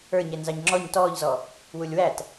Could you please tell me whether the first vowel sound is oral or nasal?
oral